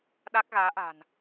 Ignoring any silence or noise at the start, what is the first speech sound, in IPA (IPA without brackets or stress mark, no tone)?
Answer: ɗ